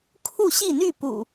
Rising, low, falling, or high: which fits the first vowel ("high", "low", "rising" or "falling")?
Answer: falling